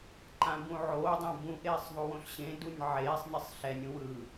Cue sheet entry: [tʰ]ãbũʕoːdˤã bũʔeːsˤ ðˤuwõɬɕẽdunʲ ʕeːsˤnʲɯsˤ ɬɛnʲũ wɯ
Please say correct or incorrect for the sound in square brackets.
incorrect